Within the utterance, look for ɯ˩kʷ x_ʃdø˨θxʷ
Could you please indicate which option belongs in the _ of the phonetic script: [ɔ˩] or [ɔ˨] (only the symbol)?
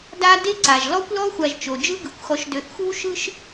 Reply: ɔ˨